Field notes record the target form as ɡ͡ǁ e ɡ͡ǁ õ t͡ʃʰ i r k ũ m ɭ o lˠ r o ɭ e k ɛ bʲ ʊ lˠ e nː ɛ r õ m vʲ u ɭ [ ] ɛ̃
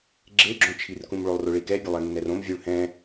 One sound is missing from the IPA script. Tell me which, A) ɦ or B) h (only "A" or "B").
B